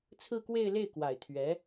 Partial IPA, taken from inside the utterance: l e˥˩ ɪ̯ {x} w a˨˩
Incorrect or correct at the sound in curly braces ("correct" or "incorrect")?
incorrect